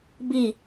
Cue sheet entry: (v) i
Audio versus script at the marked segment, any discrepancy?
yes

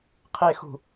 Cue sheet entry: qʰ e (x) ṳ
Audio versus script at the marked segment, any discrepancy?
no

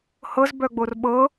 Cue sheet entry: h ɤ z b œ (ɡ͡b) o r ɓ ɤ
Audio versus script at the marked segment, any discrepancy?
no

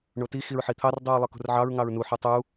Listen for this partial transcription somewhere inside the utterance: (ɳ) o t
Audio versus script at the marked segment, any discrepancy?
no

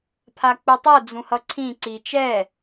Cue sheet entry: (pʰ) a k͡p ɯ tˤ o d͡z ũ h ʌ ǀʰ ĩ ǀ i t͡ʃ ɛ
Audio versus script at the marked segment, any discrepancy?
no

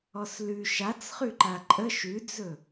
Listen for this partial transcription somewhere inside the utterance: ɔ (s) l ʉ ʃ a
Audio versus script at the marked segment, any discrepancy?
no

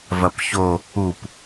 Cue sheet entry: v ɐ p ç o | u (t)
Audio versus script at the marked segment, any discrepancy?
yes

